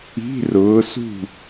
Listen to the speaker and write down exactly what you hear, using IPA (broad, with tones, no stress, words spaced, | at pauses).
i̤˧˥˧rʊː˨˦sṳ˥˨